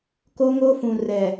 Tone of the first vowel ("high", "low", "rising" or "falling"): high